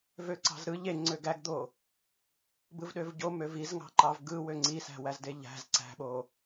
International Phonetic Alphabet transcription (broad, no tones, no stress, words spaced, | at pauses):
vøǀɑ̤zɾɯ ʎe ŋ͡ǀøɡæɡd̪o | bɯvɗøvɟo møvizŋɑ̤ǃɑv ɡɯ wøŋ͡ǀisæ̤ wæzdeʎæ̤z ǀæ̤ɓo